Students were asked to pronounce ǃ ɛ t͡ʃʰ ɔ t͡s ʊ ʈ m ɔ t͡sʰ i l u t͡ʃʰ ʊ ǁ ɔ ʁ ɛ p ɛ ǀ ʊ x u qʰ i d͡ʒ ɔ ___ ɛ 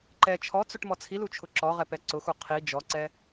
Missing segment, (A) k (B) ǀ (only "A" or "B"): B